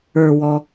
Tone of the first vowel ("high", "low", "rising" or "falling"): low